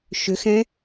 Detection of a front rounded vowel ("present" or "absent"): present